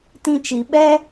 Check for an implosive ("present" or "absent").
present